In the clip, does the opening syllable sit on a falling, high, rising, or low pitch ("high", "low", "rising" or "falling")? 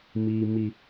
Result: low